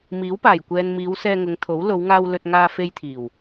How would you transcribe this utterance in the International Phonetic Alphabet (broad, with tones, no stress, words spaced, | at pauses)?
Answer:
miː˨˥wpaː˨˩jkʷɛː˨nmiː˨˧w sɛː˧ŋʊ˨˧ŋt̪ʰo˨˥w lo˨˧wŋaː˧w lɵ˧t̚ŋaː˧ fe˧jt̪ʰiː˨˩w